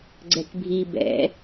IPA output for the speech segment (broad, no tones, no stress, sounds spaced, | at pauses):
ɡ͡ǀ ɛ k bʱ i b ɛ̰